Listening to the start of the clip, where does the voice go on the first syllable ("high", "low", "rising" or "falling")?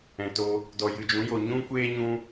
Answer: low